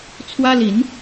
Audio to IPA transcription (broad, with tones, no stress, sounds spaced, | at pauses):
t͡sʰ w ä˥ l i˧˥ n